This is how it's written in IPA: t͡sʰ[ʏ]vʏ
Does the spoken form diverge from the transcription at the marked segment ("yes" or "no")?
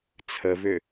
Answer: yes